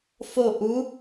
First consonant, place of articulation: labial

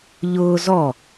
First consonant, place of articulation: palatal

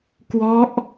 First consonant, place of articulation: velar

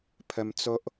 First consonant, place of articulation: labial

